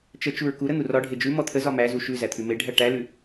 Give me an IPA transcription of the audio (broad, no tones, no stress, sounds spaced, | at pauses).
t͡ʃ ə t͡ʃ u ɹ k u ɾ ə n̪ u r ɒ ɖʱ e d͡ʒ ʉ m ɔ t̪ʰ ə z ɒ m æ z u ʃ ʉ z æ t̪ʰ ʉ m e ɖʱ æ ʈ æ l ʉ